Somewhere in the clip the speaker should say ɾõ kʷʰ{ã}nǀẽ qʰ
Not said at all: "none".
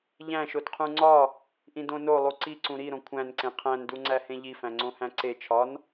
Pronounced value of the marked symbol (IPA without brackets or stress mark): æ̃